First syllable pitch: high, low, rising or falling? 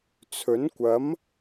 rising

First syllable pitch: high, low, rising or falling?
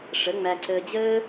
rising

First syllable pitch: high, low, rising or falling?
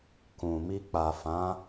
low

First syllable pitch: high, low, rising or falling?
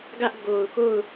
high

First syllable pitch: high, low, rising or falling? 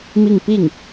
falling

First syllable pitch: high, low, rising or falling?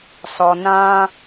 low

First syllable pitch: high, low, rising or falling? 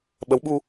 rising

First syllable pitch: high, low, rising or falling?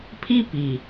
high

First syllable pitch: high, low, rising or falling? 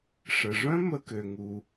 low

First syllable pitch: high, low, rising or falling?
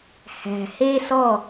low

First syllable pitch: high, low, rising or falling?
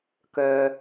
low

